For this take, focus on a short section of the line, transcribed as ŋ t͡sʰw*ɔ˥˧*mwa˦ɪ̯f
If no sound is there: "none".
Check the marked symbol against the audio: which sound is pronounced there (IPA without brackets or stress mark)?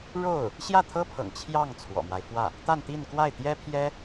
ɔ̰˨˩